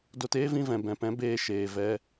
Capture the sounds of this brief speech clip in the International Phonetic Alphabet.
d o˧ t eː˦ v ĩ˧ v ɛ̃˨ b ɛ̃˨ p ɛ̃˨˦ b eː˧ ʃ eː˨ v ɛ˧

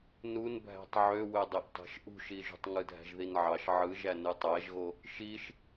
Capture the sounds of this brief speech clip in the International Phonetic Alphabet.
n u n bʱ æ̤ tˤ ʕ ø w ø dˤ e ʔ tˤ æ̤ ʃ ʔ ṳ ʃ i ʒ ṳ tˤ ŋ ɯ dʱ æ̤ ʒ ð i n ʕ ɑ ʃ ʕ ɯ ʒ æ n ɯ tˤ æ ʒ ɣ o | ʃ i ʃ

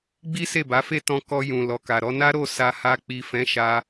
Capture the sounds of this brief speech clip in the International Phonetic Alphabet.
ɡ͡b i˦ s e˦˨ b a˨˦ f e˦ t ɔ̃˧ k ɔ˧ j ũ˨ l ɔ˨ k a˨ ɾ ɔ˧ n a˦ ɾ o˦˨ s a˧ h a˧ k͡p i˨ f ɛ̃˨˦ ʃ a˧

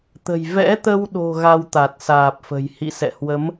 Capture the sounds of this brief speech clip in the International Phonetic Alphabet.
t̪ ə̤˨˩ j v ɛ̰˧˥ t̪ ə˧ w ɗ o̤˨˩ ɣ a˧ w t̪ a˨˩ t̚ s aː˨˩ p̚ f ə̤˨˩ j h ḭ˧˨ s ɛ̰˧˨ h w ə˨˦ m

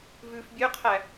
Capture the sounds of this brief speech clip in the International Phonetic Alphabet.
v ʉ f bʲ ø qʰ æ

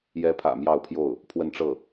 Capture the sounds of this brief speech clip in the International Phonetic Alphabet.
j ɛ˧˥ pʰ ä̰˨˩ m j ɑ˥˧ ʊ̯ pʰ j o˥˩ ʊ̯ | pʰ w ə˥˧ n ʈ͡ʂ ɤ˥˩

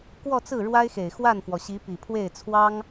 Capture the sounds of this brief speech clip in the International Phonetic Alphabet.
k w ɔ˥˧ t͡s ɹ̩˥˩ ɻ w a˥ ɪ̯ x e˨˩ ɪ̯ x w a˥˩ n f w ɔ˩ ɕ i˧˥ p i˨˩ pʰ w e˥˩ ɪ̯ t͡sʰ w ɑ˥ ŋ

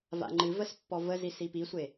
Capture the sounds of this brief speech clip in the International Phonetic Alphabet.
v a̰ ŋ͡ǃ ɨ v ə s pː ɔ v ə z i s i p i sʷ e

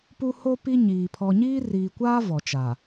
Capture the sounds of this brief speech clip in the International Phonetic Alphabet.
p u˦ h o˦ p i˦ ɲ iː˨ pʰ ɔ˨ ɲ iː˦ r iː˨ kʷ aː˦ v ɔ˨ t͡ʃ a˨

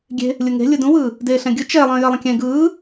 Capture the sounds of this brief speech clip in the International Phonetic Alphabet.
ɡʲ e̤ | lʲ ɯ ŋ e̤ lʲ ɯ d ũ w ɯː | d eː ɬ ɛ̃ ɡʲ ɯ t͡ʃ ɛ lˠ ə̃ː j ɜ lˠ ə̃ kʲ ɛ̃ ɡ ɯː

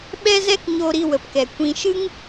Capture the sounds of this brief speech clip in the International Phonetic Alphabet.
ɓ ɛ˦ z ɛ˦ k ɲ o˧ ɾ i˧ w ə˨ p k ɛ˨ kʷ ĩ˧ ʃ ɨ˦ ŋ

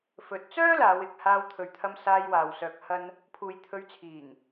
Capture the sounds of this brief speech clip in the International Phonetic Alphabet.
f ɵ˨˥ t̚ t͡s œː˥ l aː˨˧ w ɪ˨ k̚ h aː˧ w t̪ʰ ɵ˨ ɥ t̪ʰ ɐ˧ m s aː˧ j w aː˨ w s œː˨ k̚ h ɐ˧ n | pʰ uː˨ j t̪ʰ ɵ˨˧ ɥ t͡sʰ iː˨˩ ŋ

